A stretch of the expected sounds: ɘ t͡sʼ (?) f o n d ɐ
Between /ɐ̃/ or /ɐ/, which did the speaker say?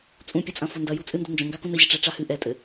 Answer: ɐ̃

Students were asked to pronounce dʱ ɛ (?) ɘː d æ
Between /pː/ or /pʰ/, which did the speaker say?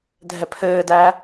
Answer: pʰ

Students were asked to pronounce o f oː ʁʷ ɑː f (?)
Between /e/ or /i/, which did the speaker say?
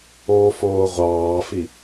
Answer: i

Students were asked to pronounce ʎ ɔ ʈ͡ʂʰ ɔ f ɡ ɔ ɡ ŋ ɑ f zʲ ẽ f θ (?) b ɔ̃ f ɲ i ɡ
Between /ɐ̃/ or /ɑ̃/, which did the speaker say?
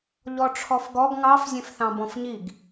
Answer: ɑ̃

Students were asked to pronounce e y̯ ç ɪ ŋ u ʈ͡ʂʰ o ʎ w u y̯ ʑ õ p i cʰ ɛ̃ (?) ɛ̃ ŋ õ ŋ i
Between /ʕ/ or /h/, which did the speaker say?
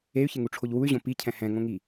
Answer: h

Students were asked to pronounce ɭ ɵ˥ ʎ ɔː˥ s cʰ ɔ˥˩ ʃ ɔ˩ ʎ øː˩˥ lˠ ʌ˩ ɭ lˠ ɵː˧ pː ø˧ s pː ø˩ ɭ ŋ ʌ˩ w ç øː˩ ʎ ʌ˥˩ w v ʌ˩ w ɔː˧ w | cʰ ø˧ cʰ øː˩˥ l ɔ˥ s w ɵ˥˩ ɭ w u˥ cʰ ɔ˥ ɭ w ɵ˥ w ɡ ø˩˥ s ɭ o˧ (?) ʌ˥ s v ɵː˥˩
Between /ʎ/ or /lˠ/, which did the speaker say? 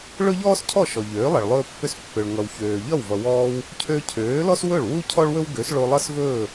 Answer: lˠ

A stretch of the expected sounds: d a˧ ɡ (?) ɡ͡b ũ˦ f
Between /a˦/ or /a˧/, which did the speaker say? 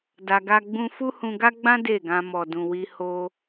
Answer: a˦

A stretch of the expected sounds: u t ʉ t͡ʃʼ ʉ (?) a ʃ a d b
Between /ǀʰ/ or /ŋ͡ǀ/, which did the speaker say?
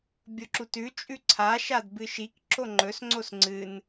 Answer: ǀʰ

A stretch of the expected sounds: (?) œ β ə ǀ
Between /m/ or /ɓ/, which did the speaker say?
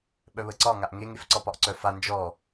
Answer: ɓ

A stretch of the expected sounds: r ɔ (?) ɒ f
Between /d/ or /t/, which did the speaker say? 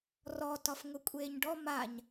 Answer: t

